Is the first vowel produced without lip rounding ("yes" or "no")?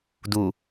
no